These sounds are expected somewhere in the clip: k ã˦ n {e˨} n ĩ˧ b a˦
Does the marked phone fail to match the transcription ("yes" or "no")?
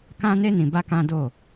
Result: yes